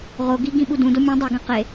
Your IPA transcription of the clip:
ʁ o ɡ i ɡ ĩ ɓ u d ũ d o mʲ ũ dˤ i ɡ ẽ q e

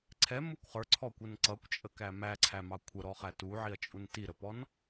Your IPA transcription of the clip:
ǀʰ ɛ m u kʷ χ ə˞ ǀʰ ɔ kʷ ə n ǀ ʌ kʷ t͡ʃʼ ə k æ m æ ǀʰ æ m ɑ kʷʰ ə ɾ ɔ χ æ t u ʕ i ɐ̯ t͡ʃʼ u n t i ɾ ə p ɔ n

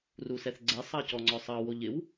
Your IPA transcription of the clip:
r u s ɛ θ ɡ͡ǀ ɛ sˤ ɑ c ɔ ŋ͡ǀ ɔ sˤ ɑ w o ʎ ɪ w

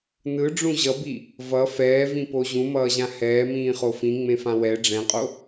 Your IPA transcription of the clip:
n ɯ ɖ͡ʐ ũ ʑ ʌ b i | v ʌ f ɛː v ĩ p o ʑ ũ m ʌː ʑ ã h ɛː m ĩː χ o f ĩ ŋ͡m ẽ f ã w ɛ ɖ͡ʐ ɛ̃ qʼ o

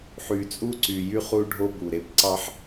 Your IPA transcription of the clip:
ħ y˨ t͡sʼ u˦ ǀ y˨ j y˦ χ u˦ ɖʱ o˦ b u˨ ɾ e˨ p ǀ ɑ˦ ħ

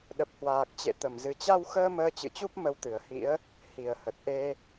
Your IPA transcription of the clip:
ɗ ə˨˩ p̚ h w aː˨˩ k̚ t͡ɕ ḛ˧˨ t̪ ə˧˩ m z ɨ˨˩ t͡ɕ a˧ w x əː˧ m əː˧ t͡ɕ ɨ̰˧˨ t͡ɕ u˦˥ p̚ m ə˨˦ w t̪ ɨ˧˩ ə̯ h ḭ˧˥ ə̯ | h i˧˩ ə̯ h ə˨˩ t̚ ʔ e˧

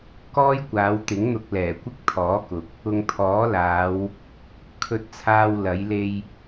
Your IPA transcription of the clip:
k ɔː˥ j kʷ aː˨˧ w t̪ ɪ˨˥ ŋ n̪ ʊ˧ k̚ l ɛː˨˩ kʷ ɪ˥ k̚ t̪ʰ ɔː˨˥ k ʊ˨ k̚ | ʊ˨ ŋ t̪ʰ ɔː˨˥ l aː˨˧ w | kʰ ɵ˧ t̚ t͡sʰ aː˧ w l ɐ˨˥ j l e˧ j

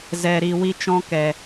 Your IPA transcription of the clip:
z ɛ˨ ɾ i˨ w i˦ t͡ʃ ɔ̃˦ k ɛ˨

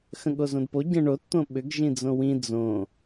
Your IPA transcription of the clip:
x ə̃ ɠ o z õ d p o ɟ ə̃ ɳ o t t̪ õ ɓ ʏ ɡ ʒ ĩ d͡z õ w ĩ d͡z õ

